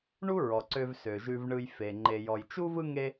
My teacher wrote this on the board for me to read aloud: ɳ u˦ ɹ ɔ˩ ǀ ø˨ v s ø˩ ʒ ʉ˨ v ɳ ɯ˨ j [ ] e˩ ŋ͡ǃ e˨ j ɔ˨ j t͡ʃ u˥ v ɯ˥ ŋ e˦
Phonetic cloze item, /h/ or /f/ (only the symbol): f